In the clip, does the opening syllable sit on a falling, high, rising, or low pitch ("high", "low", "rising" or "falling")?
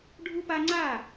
high